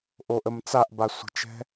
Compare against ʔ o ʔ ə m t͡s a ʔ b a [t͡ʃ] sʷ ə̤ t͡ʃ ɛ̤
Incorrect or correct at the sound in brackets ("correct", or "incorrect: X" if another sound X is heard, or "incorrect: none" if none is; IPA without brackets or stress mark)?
incorrect: none